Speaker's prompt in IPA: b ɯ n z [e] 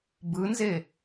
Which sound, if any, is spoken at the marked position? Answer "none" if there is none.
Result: e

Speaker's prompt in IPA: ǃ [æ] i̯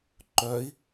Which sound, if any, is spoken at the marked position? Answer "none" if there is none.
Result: œ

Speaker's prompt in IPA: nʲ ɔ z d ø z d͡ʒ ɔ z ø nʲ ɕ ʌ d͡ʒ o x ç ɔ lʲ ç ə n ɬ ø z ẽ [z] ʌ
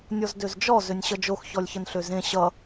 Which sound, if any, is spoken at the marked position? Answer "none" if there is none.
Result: ɕ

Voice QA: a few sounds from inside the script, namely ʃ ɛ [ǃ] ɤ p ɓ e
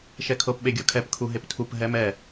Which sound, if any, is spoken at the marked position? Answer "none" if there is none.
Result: kʰ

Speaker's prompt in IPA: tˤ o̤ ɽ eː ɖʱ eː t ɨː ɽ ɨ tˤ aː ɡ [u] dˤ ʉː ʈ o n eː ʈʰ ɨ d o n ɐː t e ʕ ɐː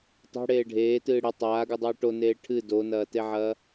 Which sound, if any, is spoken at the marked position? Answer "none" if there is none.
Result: u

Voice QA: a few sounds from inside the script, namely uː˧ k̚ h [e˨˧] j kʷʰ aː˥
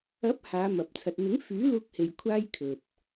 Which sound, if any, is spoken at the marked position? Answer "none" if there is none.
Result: e˨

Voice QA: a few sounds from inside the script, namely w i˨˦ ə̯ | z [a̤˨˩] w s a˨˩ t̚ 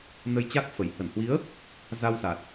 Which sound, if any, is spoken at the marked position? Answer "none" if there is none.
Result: a˧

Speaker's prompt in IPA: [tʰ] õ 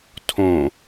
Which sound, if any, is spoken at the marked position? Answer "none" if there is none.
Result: tʰ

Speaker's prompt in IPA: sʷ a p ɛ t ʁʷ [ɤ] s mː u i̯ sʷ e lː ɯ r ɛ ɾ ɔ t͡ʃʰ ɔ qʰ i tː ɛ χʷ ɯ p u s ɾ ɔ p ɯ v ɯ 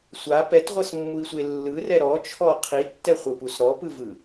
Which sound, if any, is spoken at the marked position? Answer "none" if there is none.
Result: ɤ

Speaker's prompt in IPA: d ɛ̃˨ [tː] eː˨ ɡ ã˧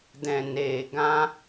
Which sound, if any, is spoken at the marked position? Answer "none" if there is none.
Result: n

